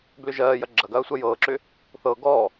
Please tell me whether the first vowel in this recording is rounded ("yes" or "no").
yes